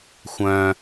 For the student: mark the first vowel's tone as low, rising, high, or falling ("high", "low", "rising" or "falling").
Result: low